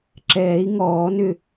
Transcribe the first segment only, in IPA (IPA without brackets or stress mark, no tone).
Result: ǁ